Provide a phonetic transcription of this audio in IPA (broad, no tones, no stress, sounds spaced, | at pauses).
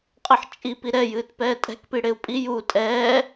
qʼ ə ħ t͡ʃʼ i p i ɾ ɛ j ɨː t p ɛː tʼ ɛ̤ k p i ɽ e u̯ pʼ i j u tʼ ɛː